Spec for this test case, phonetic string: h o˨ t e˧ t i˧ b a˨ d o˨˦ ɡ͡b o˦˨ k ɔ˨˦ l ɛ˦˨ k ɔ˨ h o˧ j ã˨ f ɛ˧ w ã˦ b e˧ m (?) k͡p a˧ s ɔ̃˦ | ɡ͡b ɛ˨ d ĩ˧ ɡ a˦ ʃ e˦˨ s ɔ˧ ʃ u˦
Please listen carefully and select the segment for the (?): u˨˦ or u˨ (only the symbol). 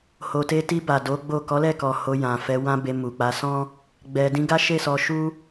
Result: u˨